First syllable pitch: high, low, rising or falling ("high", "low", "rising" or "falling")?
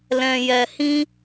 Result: low